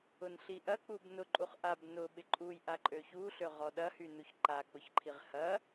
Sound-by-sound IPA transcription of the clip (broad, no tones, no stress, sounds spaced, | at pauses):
ʊ n ɬ i ʔ ɐ k͡p u b n ʊ ǃʼ u χ ʔ a b n ʊ ɓ ɪ ǃʼ u j ʔ a ǃʼ ø ç u ɬ ø ʁ ɔ ɗ ɐ h y n u ç ǃ a k͡p ʊ ç ǃʰ i ʁ h ɐ